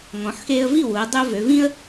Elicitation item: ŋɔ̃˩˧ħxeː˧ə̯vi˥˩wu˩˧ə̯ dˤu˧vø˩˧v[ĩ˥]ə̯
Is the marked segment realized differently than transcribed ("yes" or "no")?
no